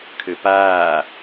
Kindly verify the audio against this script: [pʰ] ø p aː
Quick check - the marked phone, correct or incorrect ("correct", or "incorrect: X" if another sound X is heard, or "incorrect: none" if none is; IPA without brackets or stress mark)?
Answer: incorrect: kʰ